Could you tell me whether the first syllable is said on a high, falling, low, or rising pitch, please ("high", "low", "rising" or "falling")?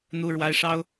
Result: high